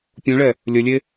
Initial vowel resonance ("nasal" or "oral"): nasal